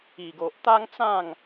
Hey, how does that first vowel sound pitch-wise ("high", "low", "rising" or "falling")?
low